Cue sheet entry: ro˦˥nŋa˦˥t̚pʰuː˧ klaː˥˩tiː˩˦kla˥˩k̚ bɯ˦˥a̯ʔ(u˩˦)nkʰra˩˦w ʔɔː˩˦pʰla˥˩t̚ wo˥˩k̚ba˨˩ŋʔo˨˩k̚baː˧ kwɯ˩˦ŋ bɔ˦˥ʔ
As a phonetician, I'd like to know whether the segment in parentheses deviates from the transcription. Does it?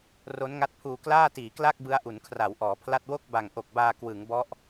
no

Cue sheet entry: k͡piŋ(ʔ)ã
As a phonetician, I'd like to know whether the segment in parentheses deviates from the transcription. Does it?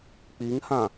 yes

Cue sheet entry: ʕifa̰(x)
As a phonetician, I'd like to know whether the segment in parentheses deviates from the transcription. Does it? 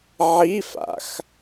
no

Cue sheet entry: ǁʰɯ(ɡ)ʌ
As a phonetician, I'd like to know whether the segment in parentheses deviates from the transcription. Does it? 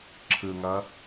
yes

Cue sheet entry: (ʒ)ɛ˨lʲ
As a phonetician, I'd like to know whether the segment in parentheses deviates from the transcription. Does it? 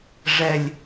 yes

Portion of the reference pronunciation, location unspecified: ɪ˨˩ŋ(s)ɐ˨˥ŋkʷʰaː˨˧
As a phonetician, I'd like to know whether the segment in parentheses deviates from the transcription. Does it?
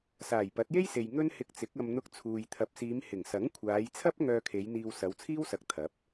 no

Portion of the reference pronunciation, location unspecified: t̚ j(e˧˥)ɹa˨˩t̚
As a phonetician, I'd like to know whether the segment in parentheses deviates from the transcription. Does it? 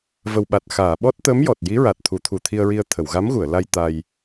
yes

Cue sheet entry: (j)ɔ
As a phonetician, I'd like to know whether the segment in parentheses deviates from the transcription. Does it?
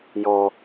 no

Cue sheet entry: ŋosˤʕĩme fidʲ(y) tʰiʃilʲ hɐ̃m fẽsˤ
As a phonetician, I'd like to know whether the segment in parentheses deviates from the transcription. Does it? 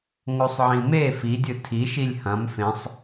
yes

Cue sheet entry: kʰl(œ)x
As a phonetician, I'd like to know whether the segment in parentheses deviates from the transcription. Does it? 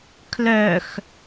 no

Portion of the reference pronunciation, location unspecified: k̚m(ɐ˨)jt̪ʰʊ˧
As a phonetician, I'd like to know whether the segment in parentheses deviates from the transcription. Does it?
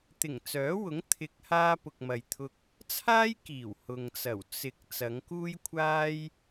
no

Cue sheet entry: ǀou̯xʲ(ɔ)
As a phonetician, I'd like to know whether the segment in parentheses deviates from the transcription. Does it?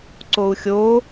yes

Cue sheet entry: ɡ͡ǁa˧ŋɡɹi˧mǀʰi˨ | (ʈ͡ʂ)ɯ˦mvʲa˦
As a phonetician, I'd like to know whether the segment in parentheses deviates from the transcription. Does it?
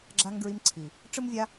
no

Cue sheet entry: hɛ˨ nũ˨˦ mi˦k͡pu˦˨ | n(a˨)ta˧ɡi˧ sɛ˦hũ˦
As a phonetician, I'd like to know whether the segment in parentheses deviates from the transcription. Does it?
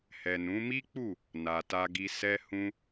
no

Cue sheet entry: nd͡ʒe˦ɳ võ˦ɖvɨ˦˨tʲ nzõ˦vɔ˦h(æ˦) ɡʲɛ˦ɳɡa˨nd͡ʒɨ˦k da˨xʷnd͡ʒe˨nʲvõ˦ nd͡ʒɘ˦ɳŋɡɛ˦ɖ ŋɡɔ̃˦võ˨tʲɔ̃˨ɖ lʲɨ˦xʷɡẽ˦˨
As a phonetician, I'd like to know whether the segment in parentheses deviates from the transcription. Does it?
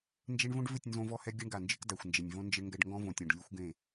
yes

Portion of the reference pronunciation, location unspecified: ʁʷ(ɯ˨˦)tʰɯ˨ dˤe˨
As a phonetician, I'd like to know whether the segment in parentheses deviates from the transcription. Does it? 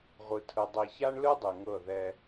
yes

